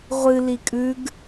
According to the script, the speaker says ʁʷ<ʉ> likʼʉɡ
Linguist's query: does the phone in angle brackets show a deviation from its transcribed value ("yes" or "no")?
yes